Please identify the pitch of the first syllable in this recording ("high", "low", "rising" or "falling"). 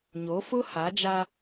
rising